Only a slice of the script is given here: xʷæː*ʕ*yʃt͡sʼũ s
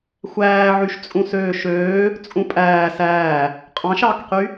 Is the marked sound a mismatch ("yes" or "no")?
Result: no